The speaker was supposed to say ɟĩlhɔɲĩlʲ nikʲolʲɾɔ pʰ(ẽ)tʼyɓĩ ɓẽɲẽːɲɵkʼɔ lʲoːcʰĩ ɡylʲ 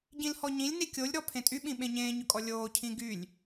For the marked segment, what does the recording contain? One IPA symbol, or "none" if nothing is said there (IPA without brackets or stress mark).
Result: ẽ